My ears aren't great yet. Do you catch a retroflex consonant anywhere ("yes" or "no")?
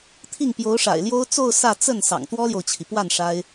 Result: yes